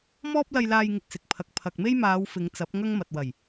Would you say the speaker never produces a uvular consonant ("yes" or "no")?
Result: yes